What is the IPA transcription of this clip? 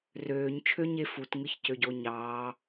røːɲt͡ʃʰøɲe futŋɯçcøɟo ɲɑː

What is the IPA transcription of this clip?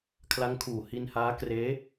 kʰla˦˥ŋkʰuː˨˩ hi˧nhaː˦˥ kreː˦˥

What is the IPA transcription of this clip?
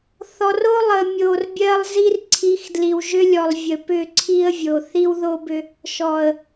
θɔ˨ro˦ lˠə˨mʲo˨rbʲɜ˦lˠzi˦r ǀʰi˨˦xdli˨wʒʏ˦lʲɔ˨lˠ vʲə˨pʏ˦˨ ǀʰi˦ə̯vʲo˨ θi˦wðo˦bʏ˦ | ʃɔ˨ə̯

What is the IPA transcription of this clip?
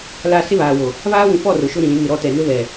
la˦ sɪ˦βaː˨wo˨ | βaː˦wũ˨fɔ˦˨ rʊ˨ʃʊ˦ɾĩ˨lĩ˨˦ mɪ˨ɾɔ˦tɛ˨ nʊ˦βɛ˨

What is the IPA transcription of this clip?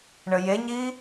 ɳəjeɲi

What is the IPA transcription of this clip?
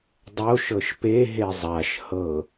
dˤoʃ ɤʃpe ɦezˤaʃ hɤ

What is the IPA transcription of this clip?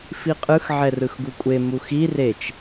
fiqʼɯx ʕɛrɯxɡukʷʼe muxi ret͡ʃ

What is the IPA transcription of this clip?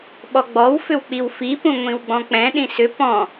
ɓɔɡ͡bɔw fʏwk͡piwfi pũŋʷĩwɡ͡bɔ̃k͡pɛ̃ ɗĩsʏ pɔ̃

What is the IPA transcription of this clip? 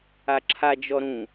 aǁʰa d͡ʒɔɾũ

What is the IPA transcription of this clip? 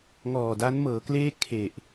ŋɔː˨˩da˦˥nmɤː˩˦kleː˥˩ kʰe˨˩ʔ

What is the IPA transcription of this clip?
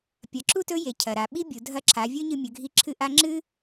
pʲɐ˩˧ǁu˥tɵ˧˥je˩ cʰɐ˩ɾa˩˧ ɓi˥bʲu˩˧ dʱɐ˧˥ǁʰa˩˧vʲɵ˥ɲɨ˧ mʲɵ˩˧ɡʱi˧ǁʰɨ˧˥ ʔa˧˥ŋ͡ǁɨ˥

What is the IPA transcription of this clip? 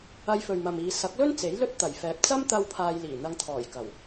ɐ˧jfɵ˨ɥmɐ˨miː˨ sɐ˨˥k̚lɵ˥n t͡se˨˥jlɵ˥t̚t̪ɐ˨˩jfɛː˨p̚ t͡sɐ˥mt̪ɐ˧w pʰaː˧jliː˨˩n̪ɐ˧ŋt̪ʰɔː˨˩j kɐ˨˩w

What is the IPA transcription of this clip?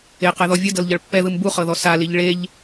eqɛðɔ vʲɯdɤlʎɤɭ pːɛðɯm buχɤðɔ saliʎ ɭeʎ

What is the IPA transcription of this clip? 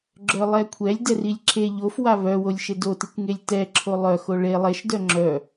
ɡ͡ǁœlˠɛkʷʰɛlʲ dɛrilʲǁʰe ʎof waβœwolʲ ʃedotikʷ ŋelʲtɛ ǁʰolˠœxo ɭe lˠeʃ dœŋ͡ǁœ

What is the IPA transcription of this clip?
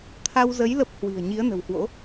t̪ʰa˧wzə˨˦j lə˦˥p̚hwi̤˨˩ə̯ ɲi˨˦ə̯nə̤˨˩whwo̰˧˥

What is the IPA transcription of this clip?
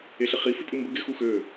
eɬɪχi fipʼɯmbə ɡɪ xuxø

